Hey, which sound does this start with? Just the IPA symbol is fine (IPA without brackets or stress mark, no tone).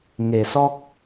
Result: ŋ